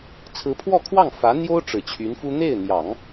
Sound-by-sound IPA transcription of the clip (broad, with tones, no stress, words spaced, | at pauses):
t͡sʰɹ̩˧˥pʰwɔ˥˧kʰwɑ˥˩ŋ fä˧˥n̪jo˥ʊ̯ ʈ͡ʂɻ̩˨˩t͡ɕʰy˧˥nfu˥ n̪e˥˩ɪ̯n̪jɑ˨˩˦ŋ